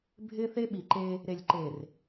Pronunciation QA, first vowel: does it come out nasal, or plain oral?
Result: oral